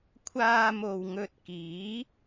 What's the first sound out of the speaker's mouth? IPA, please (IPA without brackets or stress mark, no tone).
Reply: kʷʰ